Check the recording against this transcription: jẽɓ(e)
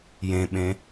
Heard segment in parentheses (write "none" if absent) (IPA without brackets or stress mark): ẽ